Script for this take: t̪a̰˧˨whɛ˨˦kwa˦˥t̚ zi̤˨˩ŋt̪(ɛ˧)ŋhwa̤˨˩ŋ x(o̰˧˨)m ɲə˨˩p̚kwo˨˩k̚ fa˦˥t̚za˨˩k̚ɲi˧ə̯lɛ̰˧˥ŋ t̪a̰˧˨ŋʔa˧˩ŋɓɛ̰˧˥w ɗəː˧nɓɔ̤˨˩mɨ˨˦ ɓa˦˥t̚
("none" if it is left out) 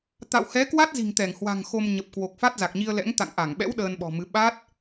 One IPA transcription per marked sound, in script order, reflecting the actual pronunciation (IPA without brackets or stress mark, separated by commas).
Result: ɛ˧˩, o˧